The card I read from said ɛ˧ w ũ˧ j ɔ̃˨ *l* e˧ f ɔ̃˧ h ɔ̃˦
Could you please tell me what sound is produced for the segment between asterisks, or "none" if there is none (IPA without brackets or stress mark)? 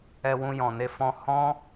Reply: n